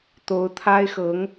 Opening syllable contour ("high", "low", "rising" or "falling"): rising